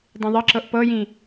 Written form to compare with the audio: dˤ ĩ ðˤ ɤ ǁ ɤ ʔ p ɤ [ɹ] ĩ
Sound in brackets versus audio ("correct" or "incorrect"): incorrect